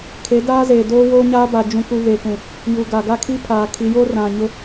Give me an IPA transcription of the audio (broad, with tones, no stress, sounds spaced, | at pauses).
kʰ e˨˦ d aː˦ z eː˨ d oː˦ w oː˦ ɲ aː˦ b a˨ d͡ʒ ũ˨ k u˨ β eː˨ k ũ˨ | j u˨ ɡ a˨ ɡ a˦ kʰ i˦ pʰ aː˨ kʰ i˨˦ j o˦ r ã˨ ɲ ʊ˦